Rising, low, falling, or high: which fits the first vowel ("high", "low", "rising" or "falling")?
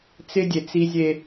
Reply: high